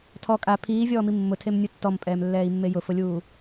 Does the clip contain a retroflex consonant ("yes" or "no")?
no